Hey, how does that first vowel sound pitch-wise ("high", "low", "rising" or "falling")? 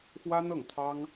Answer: high